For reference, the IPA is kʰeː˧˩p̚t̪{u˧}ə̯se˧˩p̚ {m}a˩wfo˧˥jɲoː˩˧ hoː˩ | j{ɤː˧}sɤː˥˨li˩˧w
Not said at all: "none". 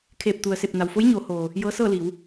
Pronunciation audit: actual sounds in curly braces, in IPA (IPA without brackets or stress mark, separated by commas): u˩, n, ɤː˧˥